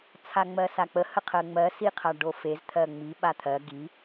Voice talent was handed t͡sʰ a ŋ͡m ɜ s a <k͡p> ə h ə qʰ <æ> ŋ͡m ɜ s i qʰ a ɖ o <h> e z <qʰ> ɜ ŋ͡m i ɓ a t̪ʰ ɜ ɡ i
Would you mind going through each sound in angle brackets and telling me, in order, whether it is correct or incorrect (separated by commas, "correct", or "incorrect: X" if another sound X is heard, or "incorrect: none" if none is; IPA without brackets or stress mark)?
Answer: correct, incorrect: ɜ, incorrect: f, incorrect: t̪ʰ